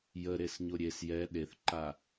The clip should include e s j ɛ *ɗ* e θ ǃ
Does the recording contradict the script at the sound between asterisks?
no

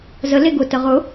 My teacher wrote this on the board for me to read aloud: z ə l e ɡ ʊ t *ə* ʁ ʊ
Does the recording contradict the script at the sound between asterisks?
no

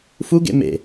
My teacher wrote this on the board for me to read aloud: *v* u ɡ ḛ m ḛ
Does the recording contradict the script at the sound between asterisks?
yes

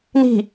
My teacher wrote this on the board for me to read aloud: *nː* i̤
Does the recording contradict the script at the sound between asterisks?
yes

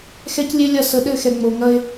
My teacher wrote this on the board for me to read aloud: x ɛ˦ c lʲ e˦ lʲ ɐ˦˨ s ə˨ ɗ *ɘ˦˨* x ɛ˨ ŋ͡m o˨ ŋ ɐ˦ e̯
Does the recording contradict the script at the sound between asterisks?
no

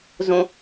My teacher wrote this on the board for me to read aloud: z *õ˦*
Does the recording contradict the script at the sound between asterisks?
no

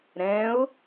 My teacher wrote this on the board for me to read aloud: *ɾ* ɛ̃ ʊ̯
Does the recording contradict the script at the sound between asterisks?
no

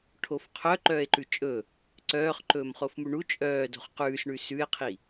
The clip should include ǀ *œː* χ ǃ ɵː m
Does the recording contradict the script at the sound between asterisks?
no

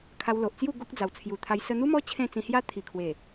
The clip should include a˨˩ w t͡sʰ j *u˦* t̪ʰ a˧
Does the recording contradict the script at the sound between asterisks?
yes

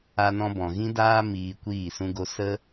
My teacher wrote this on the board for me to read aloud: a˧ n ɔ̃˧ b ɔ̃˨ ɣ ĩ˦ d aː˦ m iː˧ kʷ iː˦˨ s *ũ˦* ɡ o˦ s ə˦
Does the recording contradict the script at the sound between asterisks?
no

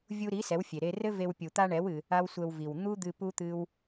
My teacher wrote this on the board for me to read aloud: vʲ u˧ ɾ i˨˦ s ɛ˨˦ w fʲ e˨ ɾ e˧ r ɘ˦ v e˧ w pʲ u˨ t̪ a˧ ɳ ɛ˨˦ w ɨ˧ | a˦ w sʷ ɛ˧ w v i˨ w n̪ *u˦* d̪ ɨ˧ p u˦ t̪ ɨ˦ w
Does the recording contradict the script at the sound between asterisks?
no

